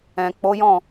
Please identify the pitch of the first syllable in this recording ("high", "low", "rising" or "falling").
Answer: low